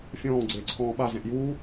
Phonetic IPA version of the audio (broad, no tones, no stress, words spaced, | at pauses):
fʲɔ̃ː ɡ͡ǀeːǀʰɔ̃ːɓa zɛ̃ʔjuː